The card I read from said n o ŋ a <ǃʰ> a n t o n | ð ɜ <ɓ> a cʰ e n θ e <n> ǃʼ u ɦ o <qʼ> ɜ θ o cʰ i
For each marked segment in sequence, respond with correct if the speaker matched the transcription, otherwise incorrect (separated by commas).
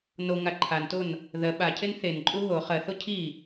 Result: correct, correct, correct, incorrect